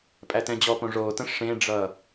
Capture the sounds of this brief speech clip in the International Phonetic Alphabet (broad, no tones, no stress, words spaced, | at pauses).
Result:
pʼætɛ̃d͡ʑɔpõ ʐotə̃ ʂẽɖ͡ʐʌ